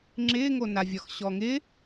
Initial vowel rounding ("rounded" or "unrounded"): unrounded